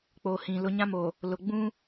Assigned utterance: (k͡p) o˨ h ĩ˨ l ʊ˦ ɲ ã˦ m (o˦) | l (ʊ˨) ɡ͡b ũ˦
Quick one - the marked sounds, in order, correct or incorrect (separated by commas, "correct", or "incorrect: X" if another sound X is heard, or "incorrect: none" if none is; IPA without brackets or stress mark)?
correct, incorrect: o˨, correct